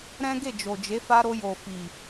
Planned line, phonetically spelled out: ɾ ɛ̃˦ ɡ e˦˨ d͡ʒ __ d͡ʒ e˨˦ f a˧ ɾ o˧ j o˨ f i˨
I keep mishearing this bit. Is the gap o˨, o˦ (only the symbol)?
o˨